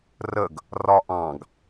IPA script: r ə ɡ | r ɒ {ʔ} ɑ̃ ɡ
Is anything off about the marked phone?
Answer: no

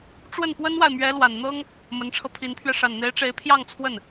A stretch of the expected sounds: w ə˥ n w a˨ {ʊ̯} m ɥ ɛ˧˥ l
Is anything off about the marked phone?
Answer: yes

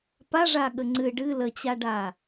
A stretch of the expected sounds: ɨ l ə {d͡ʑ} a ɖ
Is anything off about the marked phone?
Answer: yes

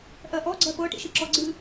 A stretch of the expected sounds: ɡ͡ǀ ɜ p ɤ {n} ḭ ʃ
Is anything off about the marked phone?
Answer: yes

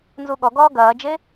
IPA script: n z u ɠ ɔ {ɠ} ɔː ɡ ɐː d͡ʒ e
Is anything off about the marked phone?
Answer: yes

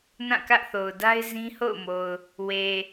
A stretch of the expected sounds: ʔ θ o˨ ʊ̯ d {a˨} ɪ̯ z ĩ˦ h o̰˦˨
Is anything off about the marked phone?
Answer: yes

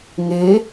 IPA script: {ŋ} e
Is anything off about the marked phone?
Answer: no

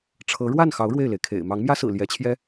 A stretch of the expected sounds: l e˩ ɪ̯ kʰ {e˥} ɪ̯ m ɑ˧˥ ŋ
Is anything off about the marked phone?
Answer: yes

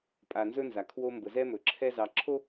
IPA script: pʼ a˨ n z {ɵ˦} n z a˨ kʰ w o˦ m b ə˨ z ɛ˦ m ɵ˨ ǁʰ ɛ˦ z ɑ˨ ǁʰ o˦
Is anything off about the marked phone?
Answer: no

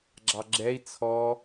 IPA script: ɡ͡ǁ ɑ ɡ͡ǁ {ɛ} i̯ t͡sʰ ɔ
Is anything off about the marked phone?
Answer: no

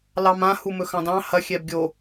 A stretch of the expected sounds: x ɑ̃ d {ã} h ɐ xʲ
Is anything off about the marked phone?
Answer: yes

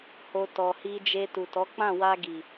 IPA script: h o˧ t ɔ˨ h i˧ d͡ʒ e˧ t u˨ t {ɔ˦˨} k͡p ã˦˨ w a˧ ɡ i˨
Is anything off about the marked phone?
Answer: yes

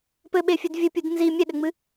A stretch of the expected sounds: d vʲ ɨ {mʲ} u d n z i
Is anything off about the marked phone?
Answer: yes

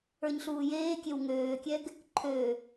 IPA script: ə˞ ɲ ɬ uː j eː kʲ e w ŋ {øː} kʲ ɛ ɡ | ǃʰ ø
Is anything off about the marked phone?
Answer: no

